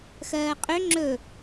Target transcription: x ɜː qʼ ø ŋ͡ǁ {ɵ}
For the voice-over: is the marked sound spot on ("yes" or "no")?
yes